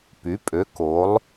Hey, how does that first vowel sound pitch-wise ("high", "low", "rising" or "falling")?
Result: rising